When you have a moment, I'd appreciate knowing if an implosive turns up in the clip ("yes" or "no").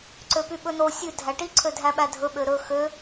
yes